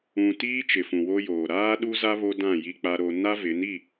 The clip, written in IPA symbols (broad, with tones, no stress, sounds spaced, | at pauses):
ũ˨ t iː˦ t͡ʃ ɪ˨ f ũ˨ w o˦ j oː˨ ɾ aː˦ ɗ u˦ z a˦ β o˦ d ã˦˨ j i˦ k͡p a˦ ɾ o˦ n a˦ v ɪ˨˦ n i˦˨